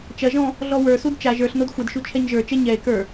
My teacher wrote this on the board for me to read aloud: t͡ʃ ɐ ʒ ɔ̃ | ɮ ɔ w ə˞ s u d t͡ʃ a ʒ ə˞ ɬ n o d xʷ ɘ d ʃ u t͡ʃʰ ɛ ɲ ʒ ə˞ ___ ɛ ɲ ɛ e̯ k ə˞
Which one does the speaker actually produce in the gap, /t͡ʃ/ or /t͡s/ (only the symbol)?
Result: t͡ʃ